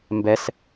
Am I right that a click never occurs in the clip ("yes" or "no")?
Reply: yes